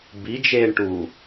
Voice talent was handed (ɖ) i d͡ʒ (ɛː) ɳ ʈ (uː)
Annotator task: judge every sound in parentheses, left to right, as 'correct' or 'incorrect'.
incorrect, incorrect, correct

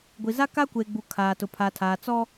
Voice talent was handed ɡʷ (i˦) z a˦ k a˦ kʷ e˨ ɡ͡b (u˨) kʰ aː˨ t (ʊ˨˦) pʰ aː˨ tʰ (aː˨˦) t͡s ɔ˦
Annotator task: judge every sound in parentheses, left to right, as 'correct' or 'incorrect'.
incorrect, correct, incorrect, incorrect

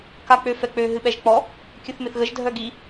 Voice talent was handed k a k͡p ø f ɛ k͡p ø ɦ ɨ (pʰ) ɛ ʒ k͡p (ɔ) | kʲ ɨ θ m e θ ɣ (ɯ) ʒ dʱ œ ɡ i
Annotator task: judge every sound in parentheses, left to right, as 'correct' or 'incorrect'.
incorrect, correct, incorrect

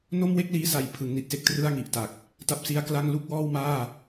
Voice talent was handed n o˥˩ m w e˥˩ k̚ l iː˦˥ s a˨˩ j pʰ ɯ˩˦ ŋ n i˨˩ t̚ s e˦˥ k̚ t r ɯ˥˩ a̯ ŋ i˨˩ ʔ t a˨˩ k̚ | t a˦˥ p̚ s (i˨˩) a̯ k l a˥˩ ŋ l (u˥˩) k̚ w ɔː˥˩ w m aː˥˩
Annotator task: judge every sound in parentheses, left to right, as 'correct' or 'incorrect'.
incorrect, correct

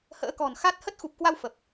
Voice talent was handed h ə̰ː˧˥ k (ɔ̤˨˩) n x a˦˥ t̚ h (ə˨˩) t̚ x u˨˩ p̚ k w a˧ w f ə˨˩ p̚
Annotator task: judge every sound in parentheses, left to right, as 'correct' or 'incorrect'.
correct, incorrect

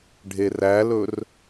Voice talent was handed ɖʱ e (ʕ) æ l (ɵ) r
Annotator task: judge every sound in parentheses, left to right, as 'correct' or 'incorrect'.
incorrect, correct

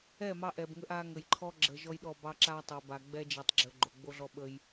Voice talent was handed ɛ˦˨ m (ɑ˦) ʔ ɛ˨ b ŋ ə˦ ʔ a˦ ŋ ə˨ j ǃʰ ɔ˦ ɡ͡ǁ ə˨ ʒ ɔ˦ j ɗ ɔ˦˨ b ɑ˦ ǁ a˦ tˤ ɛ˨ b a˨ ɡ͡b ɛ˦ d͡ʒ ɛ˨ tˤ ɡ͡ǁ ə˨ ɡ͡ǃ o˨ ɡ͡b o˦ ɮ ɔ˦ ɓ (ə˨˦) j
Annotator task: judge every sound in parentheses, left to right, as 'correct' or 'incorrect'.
correct, incorrect

